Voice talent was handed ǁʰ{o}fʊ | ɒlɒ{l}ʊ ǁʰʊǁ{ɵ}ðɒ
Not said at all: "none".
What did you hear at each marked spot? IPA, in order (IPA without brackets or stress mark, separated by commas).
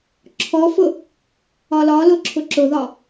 ɔ, l, ʊ